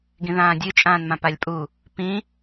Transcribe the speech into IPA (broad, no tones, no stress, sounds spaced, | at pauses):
ɡ ĩ ð ãː dʲ ɨ t͡ʃʼ ãː n m ã p a lʲ pʼ u | p ĩ